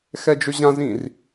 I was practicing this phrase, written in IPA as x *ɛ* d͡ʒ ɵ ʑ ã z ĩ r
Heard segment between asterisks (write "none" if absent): ɛ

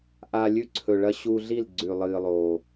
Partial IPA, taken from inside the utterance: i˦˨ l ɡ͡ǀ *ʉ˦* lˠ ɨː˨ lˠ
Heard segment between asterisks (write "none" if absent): ʉ˨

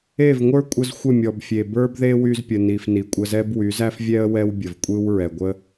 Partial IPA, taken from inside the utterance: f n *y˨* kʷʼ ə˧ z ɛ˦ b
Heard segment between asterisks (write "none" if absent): i˨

